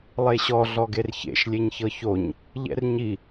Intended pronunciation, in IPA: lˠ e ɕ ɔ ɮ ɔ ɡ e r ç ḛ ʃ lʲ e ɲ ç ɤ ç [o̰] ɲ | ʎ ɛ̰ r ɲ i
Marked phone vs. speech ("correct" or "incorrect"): incorrect